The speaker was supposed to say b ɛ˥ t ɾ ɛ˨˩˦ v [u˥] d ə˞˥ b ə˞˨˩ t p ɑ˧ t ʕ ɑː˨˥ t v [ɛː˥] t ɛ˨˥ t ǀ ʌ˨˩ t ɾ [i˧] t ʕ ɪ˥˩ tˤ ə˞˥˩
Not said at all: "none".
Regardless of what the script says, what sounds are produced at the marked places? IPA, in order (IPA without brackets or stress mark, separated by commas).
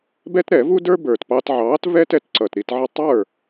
u˥, ɛː˥, i˧